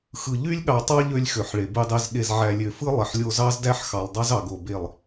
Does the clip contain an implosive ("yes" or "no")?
yes